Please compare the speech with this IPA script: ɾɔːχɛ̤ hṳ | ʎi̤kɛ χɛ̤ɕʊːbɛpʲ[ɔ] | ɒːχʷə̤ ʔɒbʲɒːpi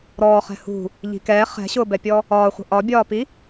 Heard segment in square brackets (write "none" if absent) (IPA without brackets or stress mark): ɔ